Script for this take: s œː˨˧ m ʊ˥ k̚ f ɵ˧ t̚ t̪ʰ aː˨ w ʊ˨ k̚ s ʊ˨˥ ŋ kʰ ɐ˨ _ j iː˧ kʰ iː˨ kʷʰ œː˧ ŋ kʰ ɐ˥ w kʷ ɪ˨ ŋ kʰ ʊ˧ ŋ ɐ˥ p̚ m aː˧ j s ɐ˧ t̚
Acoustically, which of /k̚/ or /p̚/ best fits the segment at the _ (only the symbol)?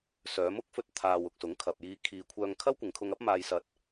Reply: p̚